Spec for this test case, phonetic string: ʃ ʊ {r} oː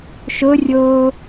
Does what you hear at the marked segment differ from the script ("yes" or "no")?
yes